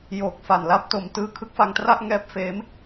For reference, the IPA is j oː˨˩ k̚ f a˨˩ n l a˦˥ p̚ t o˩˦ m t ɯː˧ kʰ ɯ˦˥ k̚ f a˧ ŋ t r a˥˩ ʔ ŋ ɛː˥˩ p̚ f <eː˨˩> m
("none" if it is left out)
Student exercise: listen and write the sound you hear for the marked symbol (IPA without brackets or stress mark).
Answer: eː˦˥